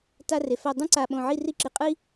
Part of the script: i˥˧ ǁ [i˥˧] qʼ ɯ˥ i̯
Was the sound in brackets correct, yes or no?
no